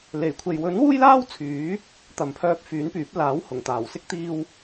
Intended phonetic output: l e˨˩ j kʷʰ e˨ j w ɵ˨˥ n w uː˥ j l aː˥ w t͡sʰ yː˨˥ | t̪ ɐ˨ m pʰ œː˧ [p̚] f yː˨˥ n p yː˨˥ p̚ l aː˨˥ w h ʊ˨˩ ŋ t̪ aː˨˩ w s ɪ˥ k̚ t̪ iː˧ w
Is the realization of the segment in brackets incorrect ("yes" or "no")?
no